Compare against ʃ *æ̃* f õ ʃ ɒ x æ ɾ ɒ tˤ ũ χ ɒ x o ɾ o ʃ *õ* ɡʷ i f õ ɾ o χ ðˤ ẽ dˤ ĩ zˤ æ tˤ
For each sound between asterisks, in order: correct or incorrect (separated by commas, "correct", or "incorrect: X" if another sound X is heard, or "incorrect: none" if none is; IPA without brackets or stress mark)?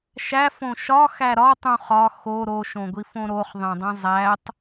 incorrect: æ, correct